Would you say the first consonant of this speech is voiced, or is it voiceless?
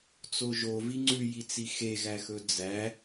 voiceless